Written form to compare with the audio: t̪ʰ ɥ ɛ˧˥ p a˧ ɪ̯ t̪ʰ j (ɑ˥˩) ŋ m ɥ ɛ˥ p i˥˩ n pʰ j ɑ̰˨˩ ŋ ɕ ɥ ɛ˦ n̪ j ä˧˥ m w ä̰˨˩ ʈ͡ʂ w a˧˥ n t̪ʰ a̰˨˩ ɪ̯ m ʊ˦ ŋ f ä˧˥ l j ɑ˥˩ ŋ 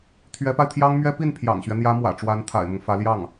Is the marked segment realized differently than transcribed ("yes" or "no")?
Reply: yes